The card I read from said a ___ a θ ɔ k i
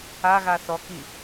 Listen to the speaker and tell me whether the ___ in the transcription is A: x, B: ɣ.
B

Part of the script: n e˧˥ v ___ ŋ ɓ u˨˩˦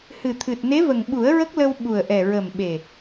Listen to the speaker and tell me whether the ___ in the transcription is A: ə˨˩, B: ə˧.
A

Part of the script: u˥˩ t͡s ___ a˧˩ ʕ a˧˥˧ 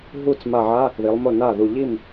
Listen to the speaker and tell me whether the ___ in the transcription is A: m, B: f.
A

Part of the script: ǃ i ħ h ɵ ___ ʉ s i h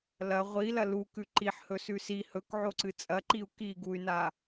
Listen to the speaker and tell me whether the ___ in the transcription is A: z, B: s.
B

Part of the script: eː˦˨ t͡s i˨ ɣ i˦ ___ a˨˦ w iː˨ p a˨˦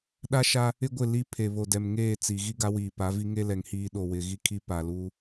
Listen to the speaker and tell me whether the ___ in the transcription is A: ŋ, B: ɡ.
B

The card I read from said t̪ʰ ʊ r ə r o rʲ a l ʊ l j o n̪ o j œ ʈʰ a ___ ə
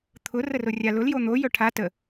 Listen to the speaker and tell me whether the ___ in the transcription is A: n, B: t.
B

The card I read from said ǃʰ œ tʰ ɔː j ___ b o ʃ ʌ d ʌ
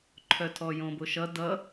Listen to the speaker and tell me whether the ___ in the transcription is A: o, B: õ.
B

